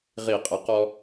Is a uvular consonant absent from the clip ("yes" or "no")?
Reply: no